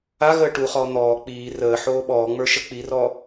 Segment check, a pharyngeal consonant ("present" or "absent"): present